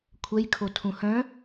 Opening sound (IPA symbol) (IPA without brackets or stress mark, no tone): kʷʰ